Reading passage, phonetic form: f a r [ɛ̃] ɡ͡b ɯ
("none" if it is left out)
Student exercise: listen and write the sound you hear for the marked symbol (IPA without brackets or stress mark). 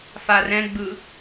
ɛ̃